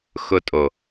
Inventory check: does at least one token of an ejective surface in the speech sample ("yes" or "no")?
yes